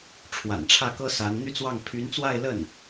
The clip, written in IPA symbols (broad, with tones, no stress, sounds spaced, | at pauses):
ʈ͡ʂʰ w a̰˨˩ n ʈ͡ʂʰ ä˥˩ k ɤ˥ s a˧˥ n n̪ y˥˧ t͡s w ɑ˥˩ ŋ pʰ y˧˥ n t͡s w a˥˧ ɪ̯ l ə˥˩ n